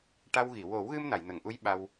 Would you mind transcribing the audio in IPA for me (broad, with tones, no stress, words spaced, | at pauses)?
ʈa˧wɣi˨˩˨ wo˨˩˦wɣɨ˧m na˨˩˨jnə˨˩˨ŋʔu˧˥j ɓa˧w